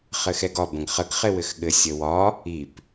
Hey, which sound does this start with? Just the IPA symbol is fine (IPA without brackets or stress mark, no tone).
χ